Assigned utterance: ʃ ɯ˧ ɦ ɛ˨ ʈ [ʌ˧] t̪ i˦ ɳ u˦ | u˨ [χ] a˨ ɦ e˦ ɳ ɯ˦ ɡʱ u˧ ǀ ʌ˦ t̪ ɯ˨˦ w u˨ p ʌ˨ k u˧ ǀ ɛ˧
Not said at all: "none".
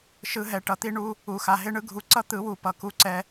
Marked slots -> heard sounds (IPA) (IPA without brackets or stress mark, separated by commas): ʌ˨, x